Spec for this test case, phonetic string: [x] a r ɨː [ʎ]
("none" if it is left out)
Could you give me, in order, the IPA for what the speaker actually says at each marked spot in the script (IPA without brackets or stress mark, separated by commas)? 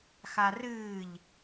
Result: x, ʎ